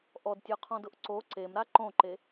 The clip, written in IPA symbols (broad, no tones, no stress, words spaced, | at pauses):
ʔɔdtʲɔqʰɔ̃dʊʔ ǀo ǀemɾa ǃõǃe